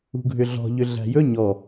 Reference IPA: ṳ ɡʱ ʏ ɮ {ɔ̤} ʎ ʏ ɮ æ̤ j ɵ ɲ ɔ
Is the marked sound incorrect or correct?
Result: correct